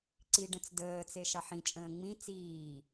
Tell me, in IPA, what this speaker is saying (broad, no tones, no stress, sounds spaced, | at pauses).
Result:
ǀ i ɖ ə̃ t͡s d əː t͡s e ʃ ɑ ħ ĩ t͡ʃʼ ə̃ː ŋ͡m ĩ t͡s iː